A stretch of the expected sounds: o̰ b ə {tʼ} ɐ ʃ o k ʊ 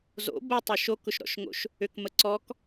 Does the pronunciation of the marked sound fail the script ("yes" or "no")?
yes